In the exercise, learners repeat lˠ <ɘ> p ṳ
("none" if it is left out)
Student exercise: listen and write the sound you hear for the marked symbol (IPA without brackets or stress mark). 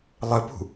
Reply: ɘ